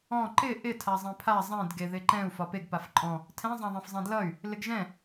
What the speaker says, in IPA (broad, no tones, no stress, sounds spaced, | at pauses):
ɔ̃ ǃ ɪ ʔ ɪ tʰ a zˤ ẽ pʰ a zˤ ɛ̃ d ɡ e ð ɪ ǃ ɛ̃ u̯ f ɒ p e ɡ p a f ǃʼ ɔ̃ | tʰ ɛ̃ zˤ ã ðˤ ɛ̃ f zˤ ɛ̃ d l ʌ y̯ | l ɪ ɡ ʒ ɛ̃